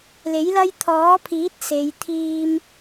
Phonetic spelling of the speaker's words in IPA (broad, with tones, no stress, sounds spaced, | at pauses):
l e˨˥ j l ɐ˥ j t̪ʰ ɔː˨˥ pʰ iː˨˥ t̚ s e˨˧ j t̪ʰ iː˧ m